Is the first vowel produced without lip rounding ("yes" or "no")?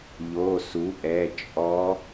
no